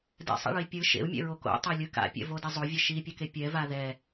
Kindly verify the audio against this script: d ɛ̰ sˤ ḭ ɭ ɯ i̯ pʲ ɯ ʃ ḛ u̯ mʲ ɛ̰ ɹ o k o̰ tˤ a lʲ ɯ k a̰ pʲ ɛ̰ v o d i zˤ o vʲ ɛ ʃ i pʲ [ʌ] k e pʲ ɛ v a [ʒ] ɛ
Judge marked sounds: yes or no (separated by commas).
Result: yes, no